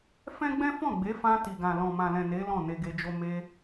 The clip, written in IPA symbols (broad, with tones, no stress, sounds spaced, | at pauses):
f ɛ̃˦ ɡ͡b ɛ̃˦ f ɔ̃˦˨ ɡ͡b e˨˦ f ã˧ t i˨ ɡ ã˨ l ɔ̃˨ m ã˨ l ɛ̃˨ n e˨˦ l ɔ̃˦˨ n e˧ ɡ e˧ d͡ʒ o˦ m e˧